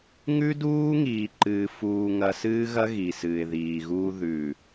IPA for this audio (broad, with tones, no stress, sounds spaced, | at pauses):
ŋ ʉ˦ d uː˦ ŋ iː˨ ǃ ɨː˨ f uː˨ ŋ ɐ˦ s ɨː˦ ɣ ɐ˦ ɣ i˨ s ɨː˨ ɪ̯ ð iː˨ ɣ uː˦ ð ʉ˨